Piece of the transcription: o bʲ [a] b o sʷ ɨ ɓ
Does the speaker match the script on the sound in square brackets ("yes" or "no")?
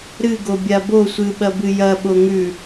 yes